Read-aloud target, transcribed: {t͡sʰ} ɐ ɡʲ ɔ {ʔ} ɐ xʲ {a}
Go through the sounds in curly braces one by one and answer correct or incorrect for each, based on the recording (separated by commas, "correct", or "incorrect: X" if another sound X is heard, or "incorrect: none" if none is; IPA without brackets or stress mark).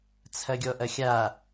correct, correct, correct